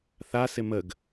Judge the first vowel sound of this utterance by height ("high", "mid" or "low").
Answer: low